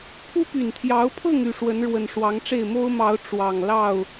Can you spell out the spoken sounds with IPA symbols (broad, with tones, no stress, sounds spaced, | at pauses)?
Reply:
pʰ u˦ p y˨˩ n t̪ʰ j ɑ˨˦ ʊ̯ pʰ ɤ˥˨ ŋ y˥˨ ʂ w ə˨˦ n ɻ w ə˨˩ n ʂ w ɑ˨˦ ŋ ʈ͡ʂ e˥˨ ɪ̯ m o˦ ʊ̯ m ɑ˨˦ ʊ̯ ʈ͡ʂ w ɑ˨˩ ŋ l ɑ˥˨ ʊ̯